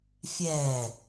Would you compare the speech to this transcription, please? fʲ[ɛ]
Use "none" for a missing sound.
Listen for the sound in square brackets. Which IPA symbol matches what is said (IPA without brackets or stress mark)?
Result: ɛ